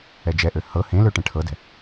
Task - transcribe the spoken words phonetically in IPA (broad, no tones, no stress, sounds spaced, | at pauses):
ɛ d͡ʒ ɛ ʔ ø h ɤ h ẽ l ø ʈ ɛ̃ ʈʰ ɤ d ɛ̤